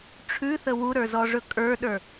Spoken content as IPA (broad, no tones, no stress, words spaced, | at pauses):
ʈ͡ʂʰʉθə wuɾə˞zɔʐɵ kʼə˞ɗə˞